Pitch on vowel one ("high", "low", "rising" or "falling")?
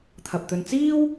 low